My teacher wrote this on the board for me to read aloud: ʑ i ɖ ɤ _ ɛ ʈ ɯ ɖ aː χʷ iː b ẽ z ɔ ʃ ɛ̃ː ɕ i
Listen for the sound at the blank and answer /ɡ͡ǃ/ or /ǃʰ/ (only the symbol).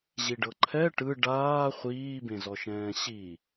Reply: ǃʰ